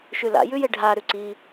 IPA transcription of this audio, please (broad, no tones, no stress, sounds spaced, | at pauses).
ʃ ʉ l a̰ j ʉ j e ɖʱ a ɾ ʉ ǀ i